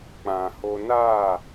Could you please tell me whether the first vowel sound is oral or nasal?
nasal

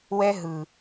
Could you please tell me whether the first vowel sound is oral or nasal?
oral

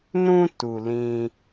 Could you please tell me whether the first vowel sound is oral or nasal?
nasal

